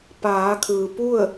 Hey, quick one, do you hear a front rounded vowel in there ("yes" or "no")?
no